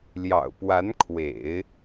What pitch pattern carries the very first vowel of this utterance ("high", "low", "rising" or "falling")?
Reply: low